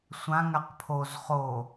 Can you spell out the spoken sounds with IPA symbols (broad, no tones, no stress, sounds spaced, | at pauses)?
sʷ ã ŋ a q pʰ o z χ o